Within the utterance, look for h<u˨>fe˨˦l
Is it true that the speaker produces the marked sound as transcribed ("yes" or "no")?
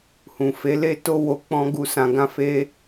no